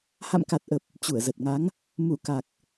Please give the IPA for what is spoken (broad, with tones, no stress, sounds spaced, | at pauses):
h a̰˧˨ m k a˨˩ t̚ ʔ ə˨˩ p̚ | t͡ɕ u˧˩ ə̯ z ə˨˩ t̚ ŋ a˨˦ ŋ | m u˧˩ k a˨˩ k̚